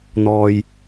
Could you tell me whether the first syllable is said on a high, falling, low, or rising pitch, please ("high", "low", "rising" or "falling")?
low